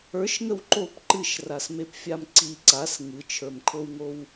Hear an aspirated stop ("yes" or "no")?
yes